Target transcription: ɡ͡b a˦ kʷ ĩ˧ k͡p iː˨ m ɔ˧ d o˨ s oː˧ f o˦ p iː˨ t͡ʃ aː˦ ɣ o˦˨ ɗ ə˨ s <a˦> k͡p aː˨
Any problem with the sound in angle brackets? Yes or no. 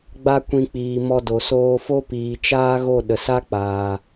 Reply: no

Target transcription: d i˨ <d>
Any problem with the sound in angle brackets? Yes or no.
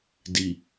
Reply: yes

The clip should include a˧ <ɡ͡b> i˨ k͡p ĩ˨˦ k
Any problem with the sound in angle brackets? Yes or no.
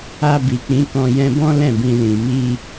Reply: yes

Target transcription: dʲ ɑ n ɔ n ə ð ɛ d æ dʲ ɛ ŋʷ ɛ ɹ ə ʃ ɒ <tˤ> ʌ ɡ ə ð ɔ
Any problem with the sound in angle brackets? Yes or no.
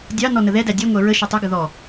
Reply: no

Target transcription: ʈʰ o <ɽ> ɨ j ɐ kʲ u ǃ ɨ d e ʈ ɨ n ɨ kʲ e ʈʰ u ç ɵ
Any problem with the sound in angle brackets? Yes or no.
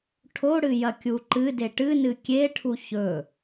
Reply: no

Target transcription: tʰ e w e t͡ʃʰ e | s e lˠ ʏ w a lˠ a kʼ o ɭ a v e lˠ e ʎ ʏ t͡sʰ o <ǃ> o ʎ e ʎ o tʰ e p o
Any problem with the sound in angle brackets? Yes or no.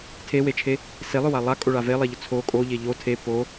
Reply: yes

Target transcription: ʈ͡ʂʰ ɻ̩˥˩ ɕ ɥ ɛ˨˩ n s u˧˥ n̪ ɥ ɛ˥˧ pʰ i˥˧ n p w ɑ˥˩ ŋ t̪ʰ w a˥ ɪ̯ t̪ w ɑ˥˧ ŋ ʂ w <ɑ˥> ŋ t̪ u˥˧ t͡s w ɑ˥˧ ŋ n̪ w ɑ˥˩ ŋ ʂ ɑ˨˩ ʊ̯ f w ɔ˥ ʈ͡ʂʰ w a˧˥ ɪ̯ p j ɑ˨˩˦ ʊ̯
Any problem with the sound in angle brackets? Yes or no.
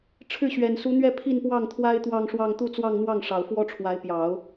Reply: yes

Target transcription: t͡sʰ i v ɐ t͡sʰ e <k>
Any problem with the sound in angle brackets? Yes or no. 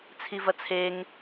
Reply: yes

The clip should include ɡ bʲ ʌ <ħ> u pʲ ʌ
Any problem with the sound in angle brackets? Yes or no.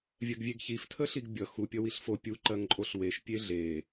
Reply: yes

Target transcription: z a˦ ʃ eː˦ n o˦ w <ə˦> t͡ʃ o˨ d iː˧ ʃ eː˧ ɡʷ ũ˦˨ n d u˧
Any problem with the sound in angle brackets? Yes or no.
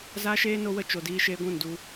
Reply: no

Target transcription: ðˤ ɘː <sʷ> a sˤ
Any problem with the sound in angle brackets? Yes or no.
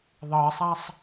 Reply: yes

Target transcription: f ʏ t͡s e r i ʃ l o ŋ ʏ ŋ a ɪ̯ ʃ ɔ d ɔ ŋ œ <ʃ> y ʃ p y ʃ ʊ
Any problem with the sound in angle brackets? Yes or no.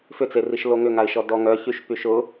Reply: yes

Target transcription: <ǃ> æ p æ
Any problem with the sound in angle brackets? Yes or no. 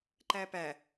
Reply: no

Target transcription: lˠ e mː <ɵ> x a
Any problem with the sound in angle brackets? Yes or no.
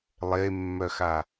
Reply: yes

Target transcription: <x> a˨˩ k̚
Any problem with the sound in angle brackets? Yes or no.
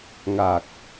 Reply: yes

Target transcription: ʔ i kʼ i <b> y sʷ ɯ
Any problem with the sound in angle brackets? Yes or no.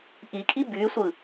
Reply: no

